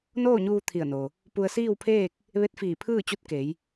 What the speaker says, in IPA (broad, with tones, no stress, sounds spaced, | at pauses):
n oː˥˨ ɲ uː˧ t̪ʰ i˧˩ ə̯ n o˩ | p u˧ ə̯ s iː˥˨ w pʰ eː˥˨ k̚ | ʋ e˧˥ t̚ f iː˧˩ pʰ ɯː˥˨ t͡ɕ u˧˥ t̚ k e˩˧ j